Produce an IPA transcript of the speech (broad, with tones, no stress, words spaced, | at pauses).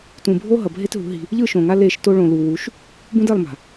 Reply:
tũ˨bʱo˦ ɦʌ˨bʱe˦tɦṳ˨˦ ɦi̤˦ | ʎɯ˦˨ʃõ˨ŋa˦ le˦˨ʃ to˦ɭõ˨lu˨ wu˨˦ʃ | bũ˦dɛ˦˨lˠma̤˨